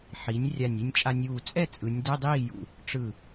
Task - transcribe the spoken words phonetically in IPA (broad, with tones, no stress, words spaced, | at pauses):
ħi˩˥nʲ rʲa˧˩nʲi˧nʲt͡ʃʼa˧nʲuː˧˩ t͡sʼɛ˥˨t͡sʼɯ˩˧nʲ dɛ˧˥˧dˤiː˥˨jṵ˧˩ | ʈ͡ʂɯ˧˩